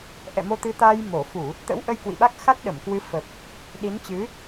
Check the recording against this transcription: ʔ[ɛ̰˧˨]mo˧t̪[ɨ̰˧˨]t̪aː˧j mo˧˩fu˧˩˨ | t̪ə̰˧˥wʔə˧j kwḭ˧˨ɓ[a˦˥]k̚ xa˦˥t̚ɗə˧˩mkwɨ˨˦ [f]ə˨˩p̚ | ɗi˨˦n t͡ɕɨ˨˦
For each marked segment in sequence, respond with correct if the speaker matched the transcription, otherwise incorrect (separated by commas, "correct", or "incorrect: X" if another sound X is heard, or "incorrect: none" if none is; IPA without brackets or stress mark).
correct, incorrect: ɨ˨˦, correct, correct